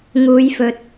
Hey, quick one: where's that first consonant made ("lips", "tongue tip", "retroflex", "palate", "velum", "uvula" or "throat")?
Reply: velum